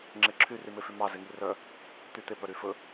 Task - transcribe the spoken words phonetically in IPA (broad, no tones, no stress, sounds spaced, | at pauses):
ŋ͡ǁ e ǁʰ y r y m e f y m ɑ z e ŋ i r œ | t̪ y t̪ e p œ ɾ y f ɵ